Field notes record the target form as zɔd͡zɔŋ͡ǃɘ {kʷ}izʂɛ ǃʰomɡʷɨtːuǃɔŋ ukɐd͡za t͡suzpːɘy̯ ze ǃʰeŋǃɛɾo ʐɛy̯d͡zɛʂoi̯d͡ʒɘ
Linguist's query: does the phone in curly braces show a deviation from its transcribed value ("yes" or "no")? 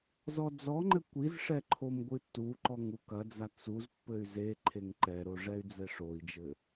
no